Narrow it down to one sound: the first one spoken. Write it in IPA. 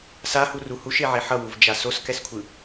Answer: s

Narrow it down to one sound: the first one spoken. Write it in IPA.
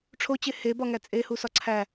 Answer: ʈ͡ʂʰ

